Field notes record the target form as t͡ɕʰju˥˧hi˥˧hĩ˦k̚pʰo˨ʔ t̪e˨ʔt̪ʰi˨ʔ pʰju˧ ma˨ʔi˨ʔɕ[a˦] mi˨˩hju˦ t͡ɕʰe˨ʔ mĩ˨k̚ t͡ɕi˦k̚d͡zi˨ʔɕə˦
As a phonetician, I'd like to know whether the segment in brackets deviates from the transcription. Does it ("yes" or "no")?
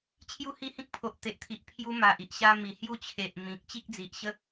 no